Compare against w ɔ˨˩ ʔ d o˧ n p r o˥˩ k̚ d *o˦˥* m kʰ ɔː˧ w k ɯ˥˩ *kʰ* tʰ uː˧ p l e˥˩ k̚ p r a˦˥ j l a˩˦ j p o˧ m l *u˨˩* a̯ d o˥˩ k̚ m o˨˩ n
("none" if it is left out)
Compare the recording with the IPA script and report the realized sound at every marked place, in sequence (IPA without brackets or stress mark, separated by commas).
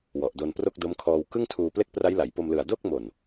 o˦˥, ŋ, ɯ˨˩